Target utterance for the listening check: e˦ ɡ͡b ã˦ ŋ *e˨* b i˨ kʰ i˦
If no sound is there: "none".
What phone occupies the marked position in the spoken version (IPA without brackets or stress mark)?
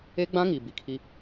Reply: i˨